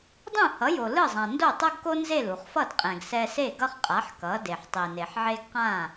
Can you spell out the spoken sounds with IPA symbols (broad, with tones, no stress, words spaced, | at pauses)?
dˤũ˥˩hʌ˩˥jo˩ lɯ˥˩zˤã˩ ndo˥˩tˤo˥ɡko˥ nze˥˩lu˩χfʌ˥˩d qʼɛ̃˩ɡsɛ˧se˥˩ ɡʌ˥χqʼa˩˥ħ kʌ˩˥ de˩ħtˤi˩ne˩ħʕe˥ɡ qã˥˩